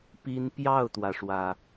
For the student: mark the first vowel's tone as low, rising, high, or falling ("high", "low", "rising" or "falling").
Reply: high